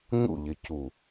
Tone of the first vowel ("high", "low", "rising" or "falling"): falling